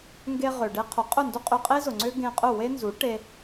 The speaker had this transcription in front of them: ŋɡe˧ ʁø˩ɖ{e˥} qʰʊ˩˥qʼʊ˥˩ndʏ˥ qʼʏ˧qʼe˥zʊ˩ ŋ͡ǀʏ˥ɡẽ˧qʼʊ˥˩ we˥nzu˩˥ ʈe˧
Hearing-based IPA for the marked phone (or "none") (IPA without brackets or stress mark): e˥